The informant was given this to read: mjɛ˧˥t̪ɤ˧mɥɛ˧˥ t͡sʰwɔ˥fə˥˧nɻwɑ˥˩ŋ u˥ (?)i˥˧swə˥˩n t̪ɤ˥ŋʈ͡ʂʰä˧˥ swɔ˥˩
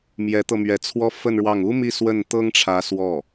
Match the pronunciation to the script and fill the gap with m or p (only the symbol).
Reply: m